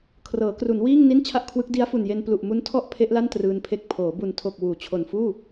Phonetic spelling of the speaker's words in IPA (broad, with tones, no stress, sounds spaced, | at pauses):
kʰ r ɤː˩˦ k r u˩˦ n w iː˥˩ ŋ n i˥˩ n t͡ɕʰ a˥˩ ʔ kʰ w ɯ˦˥ k̚ d i˦˥ a̯ f u˨˩ n j e˧ n p l u˨˩ ʔ m u˦˥ n tʰ ɔ˥˩ ʔ pʰ e˦˥ ʔ l a˥˩ n t r ɯː˧ n pʰ e˦˥ k̚ pʰ oː˩˦ b u˨˩ n tʰ o˨˩ k̚ w uː˩˦ t͡ɕʰ o˨˩ n f uː˥˩